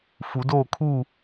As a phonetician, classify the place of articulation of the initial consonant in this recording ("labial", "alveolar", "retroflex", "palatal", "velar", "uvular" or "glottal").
labial